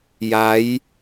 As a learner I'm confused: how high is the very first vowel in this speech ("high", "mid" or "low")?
low